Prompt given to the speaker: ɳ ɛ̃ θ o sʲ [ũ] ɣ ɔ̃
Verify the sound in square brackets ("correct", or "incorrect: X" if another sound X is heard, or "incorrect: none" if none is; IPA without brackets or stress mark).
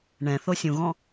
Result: correct